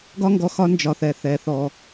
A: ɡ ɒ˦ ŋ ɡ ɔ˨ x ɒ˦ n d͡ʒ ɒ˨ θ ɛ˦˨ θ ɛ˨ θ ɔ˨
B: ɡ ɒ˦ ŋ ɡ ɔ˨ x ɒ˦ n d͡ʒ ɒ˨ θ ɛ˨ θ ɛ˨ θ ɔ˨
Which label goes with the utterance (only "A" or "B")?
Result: B